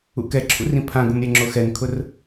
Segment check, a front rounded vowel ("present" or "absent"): absent